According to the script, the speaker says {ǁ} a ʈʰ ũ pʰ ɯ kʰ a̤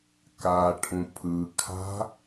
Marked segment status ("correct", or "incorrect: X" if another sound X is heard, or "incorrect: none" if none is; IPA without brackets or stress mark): incorrect: k